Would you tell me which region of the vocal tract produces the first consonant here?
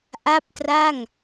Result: throat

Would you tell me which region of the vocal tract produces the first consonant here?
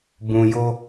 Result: lips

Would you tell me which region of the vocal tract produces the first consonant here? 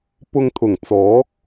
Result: lips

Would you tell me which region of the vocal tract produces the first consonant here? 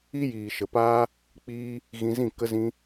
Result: palate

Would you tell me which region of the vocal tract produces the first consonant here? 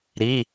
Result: tongue tip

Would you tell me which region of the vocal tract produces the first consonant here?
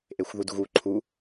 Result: throat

